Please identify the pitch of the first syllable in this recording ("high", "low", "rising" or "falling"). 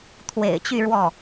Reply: low